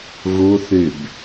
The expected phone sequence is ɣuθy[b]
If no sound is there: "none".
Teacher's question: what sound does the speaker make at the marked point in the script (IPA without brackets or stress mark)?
b